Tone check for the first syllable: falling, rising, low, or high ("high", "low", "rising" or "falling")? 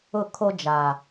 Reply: falling